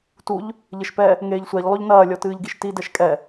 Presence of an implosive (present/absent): absent